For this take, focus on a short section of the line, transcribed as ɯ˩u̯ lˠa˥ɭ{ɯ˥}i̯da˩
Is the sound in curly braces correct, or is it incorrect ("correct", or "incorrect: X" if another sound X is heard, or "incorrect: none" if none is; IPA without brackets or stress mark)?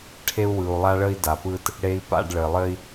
incorrect: ə˥